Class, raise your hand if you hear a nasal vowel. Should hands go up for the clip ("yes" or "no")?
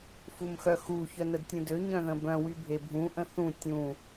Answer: yes